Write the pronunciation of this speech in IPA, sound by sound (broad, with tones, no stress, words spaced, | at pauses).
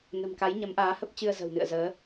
nə̤˨˩mka˨˦jɲə˨˦m ʔaː˨˦ hə˦˥p̚t͡ɕɨ˧ə̯ zə̤˨˩wnɨ̰˧˨ə̯zəː˨˦